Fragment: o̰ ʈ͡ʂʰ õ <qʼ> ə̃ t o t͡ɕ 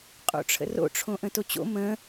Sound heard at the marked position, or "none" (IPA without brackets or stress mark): ʔ